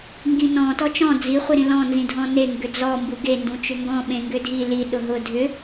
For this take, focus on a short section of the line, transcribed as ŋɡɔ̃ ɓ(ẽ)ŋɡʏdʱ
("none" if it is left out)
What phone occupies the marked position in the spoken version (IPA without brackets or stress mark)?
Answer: ẽ